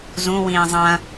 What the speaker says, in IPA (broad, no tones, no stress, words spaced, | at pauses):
zũwĩː zˤɐ̃